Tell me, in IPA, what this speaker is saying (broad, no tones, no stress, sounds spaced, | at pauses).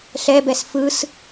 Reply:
ɬ ɛ b ɛ s f ɯ s